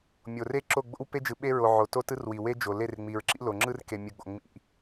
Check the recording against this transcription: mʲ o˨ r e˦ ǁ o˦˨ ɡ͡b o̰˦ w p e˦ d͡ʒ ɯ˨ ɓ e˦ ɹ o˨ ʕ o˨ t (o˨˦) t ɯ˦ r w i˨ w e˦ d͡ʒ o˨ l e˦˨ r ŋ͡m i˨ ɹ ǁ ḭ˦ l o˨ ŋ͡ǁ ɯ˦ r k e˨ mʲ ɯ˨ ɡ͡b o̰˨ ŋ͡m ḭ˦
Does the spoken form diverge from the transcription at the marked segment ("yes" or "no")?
yes